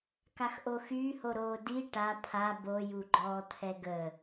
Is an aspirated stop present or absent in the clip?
present